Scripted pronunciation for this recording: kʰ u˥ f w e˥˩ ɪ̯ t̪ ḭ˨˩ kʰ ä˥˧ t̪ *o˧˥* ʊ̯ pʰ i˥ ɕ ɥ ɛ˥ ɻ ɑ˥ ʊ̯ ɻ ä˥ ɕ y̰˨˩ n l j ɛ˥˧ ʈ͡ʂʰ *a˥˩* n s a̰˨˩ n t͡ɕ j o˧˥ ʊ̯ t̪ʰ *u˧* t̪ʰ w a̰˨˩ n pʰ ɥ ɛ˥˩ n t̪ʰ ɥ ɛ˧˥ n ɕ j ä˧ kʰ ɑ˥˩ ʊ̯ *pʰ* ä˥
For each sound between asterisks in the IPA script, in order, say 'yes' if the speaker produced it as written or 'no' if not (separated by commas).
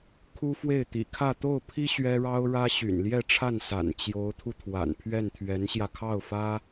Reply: no, yes, yes, no